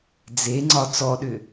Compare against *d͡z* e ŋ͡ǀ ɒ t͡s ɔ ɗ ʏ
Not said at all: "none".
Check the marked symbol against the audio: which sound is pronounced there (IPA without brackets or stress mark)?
d͡z